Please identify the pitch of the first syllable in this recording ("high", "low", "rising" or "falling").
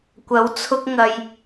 rising